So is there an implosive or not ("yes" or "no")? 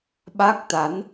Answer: yes